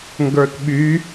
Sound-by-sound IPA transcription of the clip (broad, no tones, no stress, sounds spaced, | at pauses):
ŋ ɡ ə˞ t ɓ y